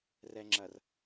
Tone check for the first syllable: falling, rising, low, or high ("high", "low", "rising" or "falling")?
low